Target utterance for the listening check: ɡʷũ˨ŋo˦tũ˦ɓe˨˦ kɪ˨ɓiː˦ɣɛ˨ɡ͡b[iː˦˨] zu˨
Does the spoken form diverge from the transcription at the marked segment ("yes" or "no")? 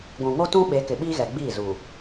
no